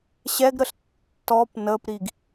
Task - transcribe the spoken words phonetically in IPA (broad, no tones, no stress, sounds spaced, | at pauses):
ɕ ɛ ɡ ɾ ə ɬ tː ɔ p n ə p ɾ i ɡ